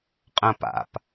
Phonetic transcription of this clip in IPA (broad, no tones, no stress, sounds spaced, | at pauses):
qʼ ɐ̃ p a̰ p